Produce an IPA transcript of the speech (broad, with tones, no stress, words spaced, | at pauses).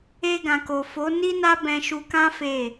e˧ɡã˨ko˨ fo˨˦ni˦ na˦bɛ̃˧ʃu˧kã˦ fe˦˨